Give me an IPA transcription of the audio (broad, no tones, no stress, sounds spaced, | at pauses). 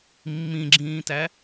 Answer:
mː ĩ ɡ͡ǁ ĩː t æ